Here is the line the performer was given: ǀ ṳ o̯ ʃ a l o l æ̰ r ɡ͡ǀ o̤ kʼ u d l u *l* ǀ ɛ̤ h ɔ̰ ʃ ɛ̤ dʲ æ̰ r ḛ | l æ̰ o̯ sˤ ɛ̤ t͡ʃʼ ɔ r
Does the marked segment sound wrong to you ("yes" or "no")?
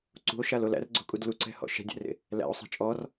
yes